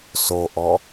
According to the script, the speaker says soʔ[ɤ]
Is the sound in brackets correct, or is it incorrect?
incorrect: ɔ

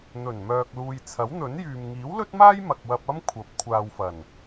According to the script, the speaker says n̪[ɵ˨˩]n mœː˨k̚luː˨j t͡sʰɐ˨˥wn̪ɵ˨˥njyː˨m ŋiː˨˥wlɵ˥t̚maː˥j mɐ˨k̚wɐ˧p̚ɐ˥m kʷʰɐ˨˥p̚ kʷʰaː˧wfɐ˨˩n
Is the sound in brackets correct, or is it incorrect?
correct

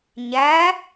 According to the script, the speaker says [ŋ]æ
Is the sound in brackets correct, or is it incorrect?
incorrect: ɲ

